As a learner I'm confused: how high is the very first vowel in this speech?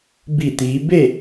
high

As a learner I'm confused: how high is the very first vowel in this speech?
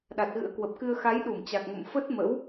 low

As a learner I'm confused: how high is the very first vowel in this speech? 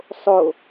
mid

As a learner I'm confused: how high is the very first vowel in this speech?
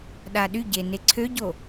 low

